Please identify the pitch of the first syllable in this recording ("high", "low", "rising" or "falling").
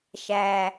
low